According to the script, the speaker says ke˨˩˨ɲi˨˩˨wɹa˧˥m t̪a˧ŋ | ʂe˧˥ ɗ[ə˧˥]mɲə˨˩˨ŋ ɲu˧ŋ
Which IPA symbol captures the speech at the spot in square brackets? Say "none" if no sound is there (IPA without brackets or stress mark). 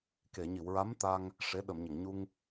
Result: ə˨˩˨